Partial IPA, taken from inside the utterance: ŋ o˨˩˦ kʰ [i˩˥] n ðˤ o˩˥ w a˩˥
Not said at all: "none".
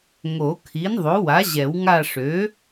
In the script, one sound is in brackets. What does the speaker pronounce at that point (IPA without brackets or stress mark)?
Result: i˩˥